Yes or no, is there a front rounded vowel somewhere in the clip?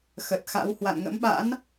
no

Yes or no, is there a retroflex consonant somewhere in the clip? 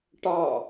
yes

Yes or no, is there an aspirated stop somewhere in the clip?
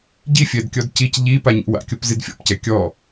no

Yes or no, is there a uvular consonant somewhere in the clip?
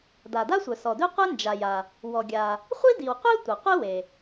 yes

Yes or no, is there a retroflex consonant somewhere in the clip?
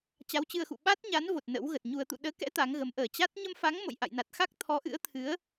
no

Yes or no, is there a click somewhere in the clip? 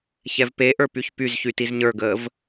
no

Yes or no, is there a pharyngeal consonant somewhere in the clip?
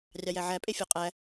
yes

